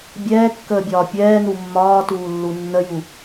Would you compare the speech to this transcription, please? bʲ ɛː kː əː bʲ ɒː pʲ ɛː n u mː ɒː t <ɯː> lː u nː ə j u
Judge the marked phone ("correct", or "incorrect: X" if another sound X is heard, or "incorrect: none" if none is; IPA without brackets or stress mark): incorrect: uː